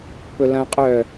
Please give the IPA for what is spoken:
p ɵ l ɐ̃ qʼ œ

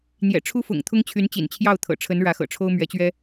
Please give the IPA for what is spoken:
n̪ j ɛ̰˨˩ ʈ͡ʂʰ u˥ f ʊ̰˨˩ ŋ t̪ʰ ʊ˥ ŋ t͡ɕʰ y˧˥ n t͡ɕ ḭ˨˩ n t͡ɕʰ j ɑ˥˩ ʊ̯ t̪ʰ ɤ̰˨˩ ʈ͡ʂʰ ə˧˥ n ɻ ä˧˥ x ɤ̰˨˩ ʈ͡ʂʰ o˥ ʊ̯ m ɥ ɛ˧˥ t͡ɕ ɥ ɛ˥

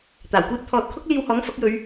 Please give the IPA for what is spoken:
t̪ aː˨˩ w kʷ iː˥ t̚ t̪ʰ ɔː˨ t̚ kʰ ʊ˥ k̚ l iː˧ w h ɔː˨˥ ŋ f ɐ˨˥ k̚ j ɵ˨˧ ɥ

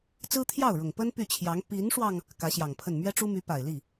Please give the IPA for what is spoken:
t͡s ɹ̩˥ t̪ʰ j ɑ˥˩ ʊ̯ ɻ ʊ˨˩ ŋ p ə˥ n p y˥˩ t͡ɕʰ j ɑ˧˥ ŋ p i˧˥ n ʂ w ɑ˧ ŋ | k ä˧˥ ɕ j ɑ˨˩ ŋ pʰ ə˥˩ n m ɥ ɛ˥ ʈ͡ʂ u˥ m y˧˥ p a˨˩ ɪ̯ l i˥˩

